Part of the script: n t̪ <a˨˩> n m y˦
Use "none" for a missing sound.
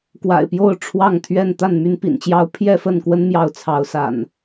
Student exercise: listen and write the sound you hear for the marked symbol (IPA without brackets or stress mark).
a˥˨